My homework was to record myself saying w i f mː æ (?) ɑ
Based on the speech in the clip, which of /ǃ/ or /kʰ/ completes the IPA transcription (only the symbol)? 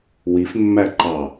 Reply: ǃ